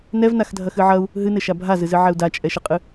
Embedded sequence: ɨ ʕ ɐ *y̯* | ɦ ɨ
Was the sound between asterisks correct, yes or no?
no